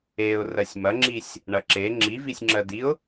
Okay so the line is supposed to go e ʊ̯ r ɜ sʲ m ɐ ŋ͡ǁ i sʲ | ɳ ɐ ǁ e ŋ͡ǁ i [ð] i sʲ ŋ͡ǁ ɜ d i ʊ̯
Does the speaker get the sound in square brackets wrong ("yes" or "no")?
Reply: yes